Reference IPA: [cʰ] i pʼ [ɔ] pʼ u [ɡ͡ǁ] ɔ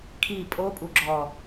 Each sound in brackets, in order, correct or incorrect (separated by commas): incorrect, incorrect, correct